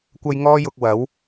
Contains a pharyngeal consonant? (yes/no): no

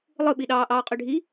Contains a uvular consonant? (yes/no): yes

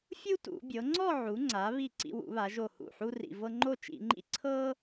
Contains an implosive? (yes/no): no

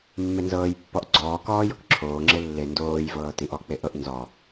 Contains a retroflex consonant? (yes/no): no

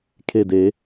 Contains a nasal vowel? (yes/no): no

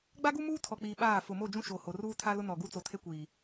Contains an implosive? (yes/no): yes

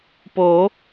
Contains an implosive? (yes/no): no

